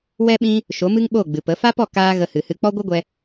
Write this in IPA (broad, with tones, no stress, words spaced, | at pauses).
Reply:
wɛ˦ɓĩ˦ | ʃo˨˦mɨ˦ŋɓo˦˨ ɡ͡bɨ˨pə˨˦ fa˦pɔ˦˨ kaː˦ ɣə˧hɨ˨hɨ˧ k͡pɔ˦ɡʷɨ˦ɡʷɛ˧